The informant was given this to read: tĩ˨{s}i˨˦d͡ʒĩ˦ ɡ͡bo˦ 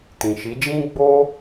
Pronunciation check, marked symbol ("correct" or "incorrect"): incorrect